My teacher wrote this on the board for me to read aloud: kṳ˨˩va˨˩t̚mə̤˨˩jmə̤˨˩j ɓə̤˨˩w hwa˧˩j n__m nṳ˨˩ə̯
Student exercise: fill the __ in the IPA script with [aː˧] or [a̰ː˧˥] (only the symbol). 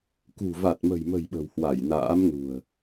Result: a̰ː˧˥